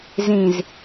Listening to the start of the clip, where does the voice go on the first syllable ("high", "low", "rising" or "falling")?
low